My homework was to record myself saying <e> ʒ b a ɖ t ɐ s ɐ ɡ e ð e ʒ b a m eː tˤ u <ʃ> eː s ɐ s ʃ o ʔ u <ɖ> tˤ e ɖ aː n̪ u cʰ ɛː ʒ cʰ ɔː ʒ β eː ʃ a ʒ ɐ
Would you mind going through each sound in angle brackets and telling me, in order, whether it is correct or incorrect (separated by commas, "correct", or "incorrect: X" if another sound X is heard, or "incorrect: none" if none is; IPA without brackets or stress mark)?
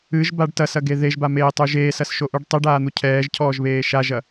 incorrect: ɨ, incorrect: ʒ, correct